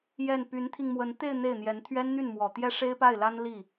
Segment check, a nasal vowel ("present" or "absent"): absent